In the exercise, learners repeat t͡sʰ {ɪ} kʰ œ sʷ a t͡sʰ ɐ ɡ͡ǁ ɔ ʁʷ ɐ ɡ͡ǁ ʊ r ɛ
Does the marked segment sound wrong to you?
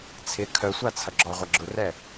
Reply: no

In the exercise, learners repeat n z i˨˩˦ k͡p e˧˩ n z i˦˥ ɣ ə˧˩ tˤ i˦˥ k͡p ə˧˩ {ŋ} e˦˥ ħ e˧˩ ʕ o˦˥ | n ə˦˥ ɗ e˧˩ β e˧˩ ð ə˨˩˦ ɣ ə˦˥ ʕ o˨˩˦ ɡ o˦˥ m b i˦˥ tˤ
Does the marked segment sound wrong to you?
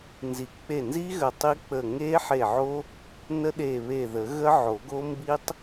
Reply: no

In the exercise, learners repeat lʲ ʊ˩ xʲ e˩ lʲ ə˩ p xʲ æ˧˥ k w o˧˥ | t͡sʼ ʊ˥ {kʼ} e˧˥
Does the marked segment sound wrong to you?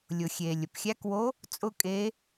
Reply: no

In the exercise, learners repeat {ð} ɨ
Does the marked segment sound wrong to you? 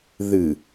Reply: no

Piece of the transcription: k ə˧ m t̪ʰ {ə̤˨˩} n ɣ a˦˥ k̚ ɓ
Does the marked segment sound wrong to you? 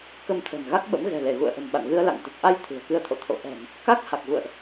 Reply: no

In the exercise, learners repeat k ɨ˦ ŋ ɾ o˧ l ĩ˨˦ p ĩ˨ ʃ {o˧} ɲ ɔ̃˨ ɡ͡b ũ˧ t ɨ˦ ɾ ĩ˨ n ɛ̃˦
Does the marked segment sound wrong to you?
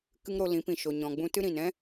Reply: yes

